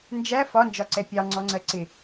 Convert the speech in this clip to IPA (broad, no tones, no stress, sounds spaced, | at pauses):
n d͡ʒ æ f ɒ n d͡ʒ ɒ ǀ ɛ pʲ ɑ ŋ͡ǀ ɔ ŋ͡ǀ ɜ ǀ ɪ